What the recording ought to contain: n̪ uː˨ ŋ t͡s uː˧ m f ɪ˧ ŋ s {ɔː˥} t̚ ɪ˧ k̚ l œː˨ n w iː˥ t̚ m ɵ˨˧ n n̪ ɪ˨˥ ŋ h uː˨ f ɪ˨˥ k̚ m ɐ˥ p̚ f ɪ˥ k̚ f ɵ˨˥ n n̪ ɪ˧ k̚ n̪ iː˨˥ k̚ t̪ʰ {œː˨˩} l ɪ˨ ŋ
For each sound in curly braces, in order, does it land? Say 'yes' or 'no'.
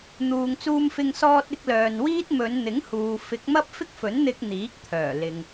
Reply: no, yes

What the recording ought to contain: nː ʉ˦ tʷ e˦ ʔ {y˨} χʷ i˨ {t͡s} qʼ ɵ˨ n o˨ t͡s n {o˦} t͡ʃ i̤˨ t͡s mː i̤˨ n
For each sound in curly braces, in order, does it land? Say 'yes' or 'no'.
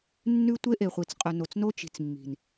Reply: no, yes, yes

